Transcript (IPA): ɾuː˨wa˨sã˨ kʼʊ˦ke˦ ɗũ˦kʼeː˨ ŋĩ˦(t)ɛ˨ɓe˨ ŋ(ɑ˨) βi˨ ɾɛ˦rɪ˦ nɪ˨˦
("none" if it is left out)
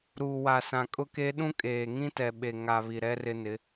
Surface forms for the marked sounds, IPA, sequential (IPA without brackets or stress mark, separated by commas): t, a˨